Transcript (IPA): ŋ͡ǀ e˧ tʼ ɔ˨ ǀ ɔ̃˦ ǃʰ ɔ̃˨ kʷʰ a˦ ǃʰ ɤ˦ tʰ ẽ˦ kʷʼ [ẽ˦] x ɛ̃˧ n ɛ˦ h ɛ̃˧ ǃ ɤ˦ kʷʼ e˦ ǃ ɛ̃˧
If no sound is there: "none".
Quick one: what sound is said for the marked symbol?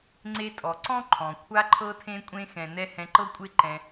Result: ẽ˦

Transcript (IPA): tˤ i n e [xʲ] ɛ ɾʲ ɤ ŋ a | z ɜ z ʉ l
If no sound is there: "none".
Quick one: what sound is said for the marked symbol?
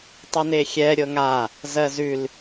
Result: xʲ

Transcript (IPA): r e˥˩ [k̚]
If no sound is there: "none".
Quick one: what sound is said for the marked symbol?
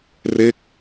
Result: k̚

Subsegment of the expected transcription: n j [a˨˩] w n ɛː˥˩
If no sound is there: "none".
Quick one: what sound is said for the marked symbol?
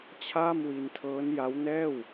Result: a˦˥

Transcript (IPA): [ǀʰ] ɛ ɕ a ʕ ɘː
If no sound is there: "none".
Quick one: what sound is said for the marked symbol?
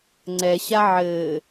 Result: ŋ͡ǀ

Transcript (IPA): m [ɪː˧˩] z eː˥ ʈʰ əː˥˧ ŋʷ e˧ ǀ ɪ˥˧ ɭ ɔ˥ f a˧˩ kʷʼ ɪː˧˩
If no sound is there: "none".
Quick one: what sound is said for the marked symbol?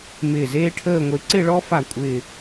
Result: ɪː˧˩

